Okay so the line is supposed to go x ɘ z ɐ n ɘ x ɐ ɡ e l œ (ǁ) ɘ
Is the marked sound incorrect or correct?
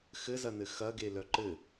incorrect